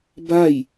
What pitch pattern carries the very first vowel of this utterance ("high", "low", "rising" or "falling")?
falling